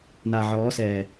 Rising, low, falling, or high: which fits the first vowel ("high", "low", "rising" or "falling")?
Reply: low